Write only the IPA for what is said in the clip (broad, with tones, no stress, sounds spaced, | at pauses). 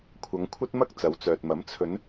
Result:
kʷʰ ɐ˨˧ ŋ kʷʰ ɐ˥ t̚ m ɐ˥ k̚ t͡s ɐ˨˧ w t͡s œː˨ t̚ m ɐ˨˥ m t͡sʰ ɵ˨˧ n